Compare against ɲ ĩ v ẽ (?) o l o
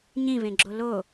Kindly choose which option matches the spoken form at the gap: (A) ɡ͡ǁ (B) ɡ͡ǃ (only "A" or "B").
A